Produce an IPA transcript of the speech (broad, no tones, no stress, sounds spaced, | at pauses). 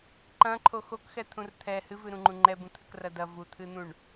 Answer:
ǃ ɐ̃ ǃʰ o x o k x ɛ t̪ʰ ũ r t̪ʰ ɛ h ɨ v ɨ ɾ ũ ŋ͡ǃ ũ ŋ͡ǃ ɛ b ũ t̪ʰ ɘ k r ɐ d ɐ v u t̪ʰ ɨ n̪ ũ ɳ